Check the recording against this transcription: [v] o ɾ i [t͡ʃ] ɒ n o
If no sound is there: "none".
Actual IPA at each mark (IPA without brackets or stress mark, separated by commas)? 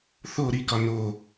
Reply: θ, k